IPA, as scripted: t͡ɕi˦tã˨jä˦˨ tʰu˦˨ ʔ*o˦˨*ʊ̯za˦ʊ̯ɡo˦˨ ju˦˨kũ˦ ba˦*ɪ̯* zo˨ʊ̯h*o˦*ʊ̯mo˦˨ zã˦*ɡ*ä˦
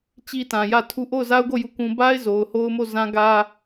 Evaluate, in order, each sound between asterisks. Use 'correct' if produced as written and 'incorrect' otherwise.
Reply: correct, correct, correct, correct

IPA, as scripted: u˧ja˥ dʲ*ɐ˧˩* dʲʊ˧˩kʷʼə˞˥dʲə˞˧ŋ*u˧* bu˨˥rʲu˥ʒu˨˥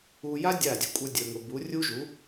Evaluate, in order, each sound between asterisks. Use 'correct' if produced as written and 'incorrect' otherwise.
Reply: incorrect: a˧˩, incorrect: ʊ˧

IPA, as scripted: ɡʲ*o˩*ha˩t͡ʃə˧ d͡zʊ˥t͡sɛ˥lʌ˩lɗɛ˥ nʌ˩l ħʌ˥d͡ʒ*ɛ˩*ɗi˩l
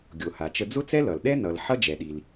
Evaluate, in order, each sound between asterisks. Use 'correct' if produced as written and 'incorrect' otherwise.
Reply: correct, correct

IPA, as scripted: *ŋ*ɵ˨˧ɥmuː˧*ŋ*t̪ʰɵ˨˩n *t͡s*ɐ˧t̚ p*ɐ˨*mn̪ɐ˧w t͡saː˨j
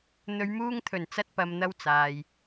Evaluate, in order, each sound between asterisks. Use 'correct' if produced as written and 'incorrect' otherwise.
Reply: incorrect: n̪, correct, correct, correct

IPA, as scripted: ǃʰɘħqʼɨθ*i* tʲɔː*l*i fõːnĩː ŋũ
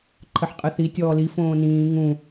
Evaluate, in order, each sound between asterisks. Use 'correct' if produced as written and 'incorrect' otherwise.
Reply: correct, correct

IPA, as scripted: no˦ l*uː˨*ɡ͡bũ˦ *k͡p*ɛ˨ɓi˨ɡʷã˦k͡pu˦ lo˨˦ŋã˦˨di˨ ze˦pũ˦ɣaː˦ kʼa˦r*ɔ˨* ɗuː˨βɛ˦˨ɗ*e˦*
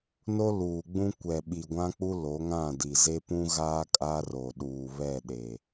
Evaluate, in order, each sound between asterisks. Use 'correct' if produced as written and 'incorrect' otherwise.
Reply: correct, incorrect: kʷ, incorrect: o˨, incorrect: e˨

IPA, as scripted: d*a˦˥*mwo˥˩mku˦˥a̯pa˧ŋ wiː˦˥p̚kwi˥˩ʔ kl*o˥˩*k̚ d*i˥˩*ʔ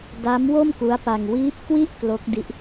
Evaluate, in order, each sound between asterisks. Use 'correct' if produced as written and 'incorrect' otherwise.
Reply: correct, incorrect: o˦˥, incorrect: i˦˥

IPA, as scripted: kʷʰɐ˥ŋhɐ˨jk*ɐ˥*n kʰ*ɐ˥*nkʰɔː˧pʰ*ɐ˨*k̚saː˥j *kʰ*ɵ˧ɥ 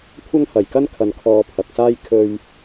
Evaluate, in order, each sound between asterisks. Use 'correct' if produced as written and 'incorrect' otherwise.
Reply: correct, incorrect: ɐ˧, correct, correct

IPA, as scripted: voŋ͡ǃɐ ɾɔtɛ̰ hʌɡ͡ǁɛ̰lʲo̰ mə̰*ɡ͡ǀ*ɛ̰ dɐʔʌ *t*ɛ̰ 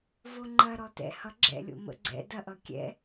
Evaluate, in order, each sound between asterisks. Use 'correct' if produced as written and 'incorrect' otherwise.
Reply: correct, incorrect: kʲ

